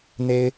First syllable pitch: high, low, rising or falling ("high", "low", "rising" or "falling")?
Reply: high